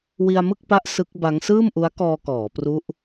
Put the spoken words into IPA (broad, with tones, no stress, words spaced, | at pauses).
wi˧a̯mɯ˥˩k̚pa˦˥ʔ sɯ˦˥k̚ba˦˥ŋ sɯː˥˩mʔu˦˥a̯kɔː˧kɔː˩˦ pru˦˥ʔ